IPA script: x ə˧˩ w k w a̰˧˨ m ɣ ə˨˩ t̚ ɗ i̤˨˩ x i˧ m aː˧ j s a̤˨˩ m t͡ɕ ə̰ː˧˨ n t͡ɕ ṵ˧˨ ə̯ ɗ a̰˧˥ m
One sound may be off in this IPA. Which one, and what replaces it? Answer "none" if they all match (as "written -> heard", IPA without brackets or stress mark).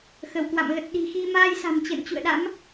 none